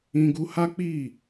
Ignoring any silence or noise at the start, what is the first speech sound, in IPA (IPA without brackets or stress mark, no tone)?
ĩ